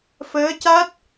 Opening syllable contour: rising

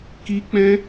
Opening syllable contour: high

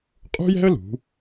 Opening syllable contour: high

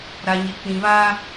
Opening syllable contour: low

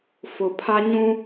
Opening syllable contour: low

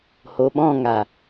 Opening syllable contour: low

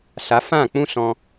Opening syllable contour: rising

